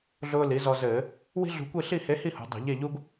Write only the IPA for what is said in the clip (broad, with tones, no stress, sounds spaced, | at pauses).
ɮ ʊː˧ l i˩˧ z ɔ˧ z ɘː˧˩˧ | w i̤˥ ɮ ṳ˧ kʷ i˥˧ ɬ i˥˧ h e˧˥ h i˥˧ h ṳ˩˧ dˤ ṳ˧˩˧ ʎ e˥˧ ʎ u˥ ɡ